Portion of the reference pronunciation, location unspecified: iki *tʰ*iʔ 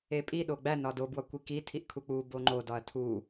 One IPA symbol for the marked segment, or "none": tʰ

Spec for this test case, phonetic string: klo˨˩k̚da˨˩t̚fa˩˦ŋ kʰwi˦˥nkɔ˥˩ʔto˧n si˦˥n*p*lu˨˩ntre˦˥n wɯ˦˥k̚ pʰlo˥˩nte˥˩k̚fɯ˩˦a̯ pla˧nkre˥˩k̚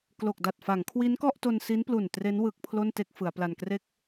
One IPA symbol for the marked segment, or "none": p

